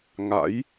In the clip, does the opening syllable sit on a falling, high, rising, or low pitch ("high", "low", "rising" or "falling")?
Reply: rising